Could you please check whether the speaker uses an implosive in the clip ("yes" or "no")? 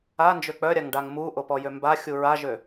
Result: no